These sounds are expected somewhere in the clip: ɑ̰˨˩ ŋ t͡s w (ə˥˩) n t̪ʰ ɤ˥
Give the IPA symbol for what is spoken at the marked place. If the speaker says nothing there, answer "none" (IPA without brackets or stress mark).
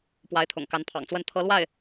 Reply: ə˥˩